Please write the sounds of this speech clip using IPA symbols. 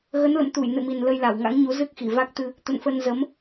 ɣ ə˨˦ n l ə̰˧˨ m t̪ u˧˩ j n ɨ̰˧˨ m i˨˩ n l ə˧ j l a˧˩ w ŋ a̰˧˥ ŋ ɲ u˨˦ z ɨ˦˥ k̚ x i˧˩ v a˦˥ k̚ t̪ ɨ˧ | t̪ ə̰˧˨ n f ə˧ n z ə˨˦ m

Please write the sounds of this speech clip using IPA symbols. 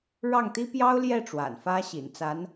ɻ ɑ˥˩ ŋ t̪ i˥ p j ɑ˥ ʊ̯ l j ɛ˥˩ ʈ͡ʂ w a̰˨˩ n f ä˥ ɕ ḭ˨˩ n t͡s a˧˥ n

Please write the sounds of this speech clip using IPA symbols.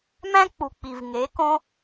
m æ̃˦ k͡p u˨ k͡p i˨ v ŋ e˨˦ k õ˦

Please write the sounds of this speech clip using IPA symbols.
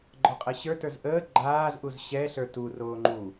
ɡ͡ǃ ɔ qʼ ɛ ɕ ə˞ t ə˞ z ʔ əː ɡ͡ǃ aː z ʔ u z ɕ ɛ ɬ ə˞ t u r oː ŋ͡ǃ u

